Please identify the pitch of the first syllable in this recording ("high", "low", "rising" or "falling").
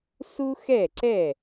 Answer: high